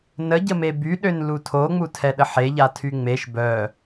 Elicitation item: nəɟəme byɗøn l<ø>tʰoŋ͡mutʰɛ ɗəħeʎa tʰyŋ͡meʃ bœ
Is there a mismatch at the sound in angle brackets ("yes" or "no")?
yes